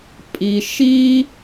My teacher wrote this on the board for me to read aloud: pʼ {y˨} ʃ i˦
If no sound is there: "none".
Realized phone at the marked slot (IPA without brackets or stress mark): i˨